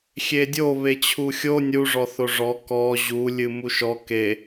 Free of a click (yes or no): yes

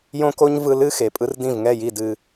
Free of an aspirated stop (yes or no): yes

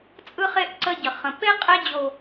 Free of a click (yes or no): no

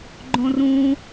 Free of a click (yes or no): no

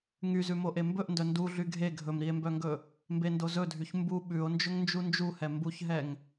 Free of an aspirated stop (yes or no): yes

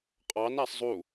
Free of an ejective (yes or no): no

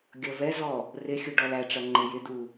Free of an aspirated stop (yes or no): yes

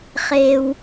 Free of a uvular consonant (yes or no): no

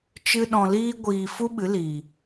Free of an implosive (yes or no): no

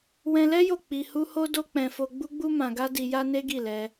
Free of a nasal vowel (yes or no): no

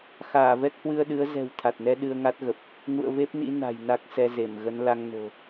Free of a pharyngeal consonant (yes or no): yes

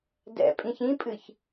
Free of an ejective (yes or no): no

